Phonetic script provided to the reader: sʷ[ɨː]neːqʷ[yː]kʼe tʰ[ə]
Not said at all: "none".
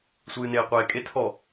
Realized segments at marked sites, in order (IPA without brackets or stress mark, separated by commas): ɨː, eː, ɔ